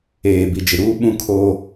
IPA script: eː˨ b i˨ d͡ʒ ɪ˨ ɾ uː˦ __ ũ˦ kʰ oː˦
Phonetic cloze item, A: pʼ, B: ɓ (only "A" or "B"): B